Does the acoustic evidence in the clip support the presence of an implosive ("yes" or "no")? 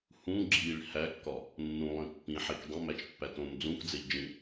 no